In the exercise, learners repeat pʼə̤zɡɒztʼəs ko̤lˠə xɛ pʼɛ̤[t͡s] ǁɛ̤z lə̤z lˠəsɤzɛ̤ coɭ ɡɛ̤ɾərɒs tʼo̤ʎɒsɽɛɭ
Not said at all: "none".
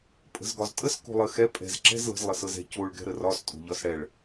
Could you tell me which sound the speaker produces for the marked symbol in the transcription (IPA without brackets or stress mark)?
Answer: z